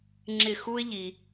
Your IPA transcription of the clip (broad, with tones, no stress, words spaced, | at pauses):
ŋ͡ǁɪ˧˩xu˦ɪ̯ʎi˩